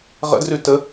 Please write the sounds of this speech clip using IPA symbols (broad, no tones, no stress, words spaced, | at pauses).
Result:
ʁə̰drʉ tə